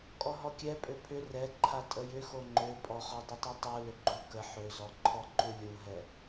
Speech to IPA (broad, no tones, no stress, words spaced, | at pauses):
kʼɔɦɔkʲɛpʼø pʰʏ rɛǃʰa tʼəjʏxo ŋ͡ǃøpʼɔχɔ dˤʏtˤutˤu lʏɡ͡ǃu kə ħøzɔ ǃʰɔǃulʲuɦɛ